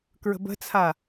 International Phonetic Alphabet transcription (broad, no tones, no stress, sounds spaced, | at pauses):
k ɹ ə̤ b ə̤ t͡sʰ a